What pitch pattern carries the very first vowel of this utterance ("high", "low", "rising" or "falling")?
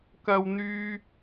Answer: high